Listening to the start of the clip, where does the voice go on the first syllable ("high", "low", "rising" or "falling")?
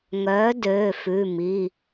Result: rising